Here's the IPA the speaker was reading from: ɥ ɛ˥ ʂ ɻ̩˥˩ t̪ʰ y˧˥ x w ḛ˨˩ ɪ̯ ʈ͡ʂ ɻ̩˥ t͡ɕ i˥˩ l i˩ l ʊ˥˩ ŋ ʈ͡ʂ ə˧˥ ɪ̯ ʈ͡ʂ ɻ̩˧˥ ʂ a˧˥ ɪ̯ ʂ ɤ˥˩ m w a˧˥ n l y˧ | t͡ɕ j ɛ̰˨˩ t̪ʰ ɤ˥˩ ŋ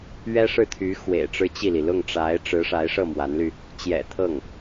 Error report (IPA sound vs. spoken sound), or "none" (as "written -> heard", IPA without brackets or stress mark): ə˧˥ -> a˧˥